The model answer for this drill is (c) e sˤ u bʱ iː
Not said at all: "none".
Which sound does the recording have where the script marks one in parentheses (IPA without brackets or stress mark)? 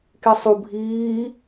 k